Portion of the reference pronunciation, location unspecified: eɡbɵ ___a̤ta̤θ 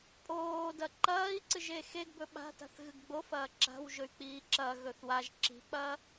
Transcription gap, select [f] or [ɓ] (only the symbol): ɓ